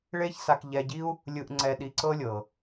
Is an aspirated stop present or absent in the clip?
absent